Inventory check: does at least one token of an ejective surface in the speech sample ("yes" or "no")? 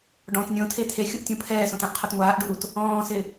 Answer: no